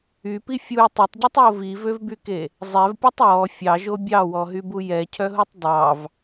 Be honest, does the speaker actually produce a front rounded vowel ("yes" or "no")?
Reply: yes